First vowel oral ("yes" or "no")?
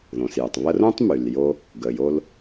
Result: no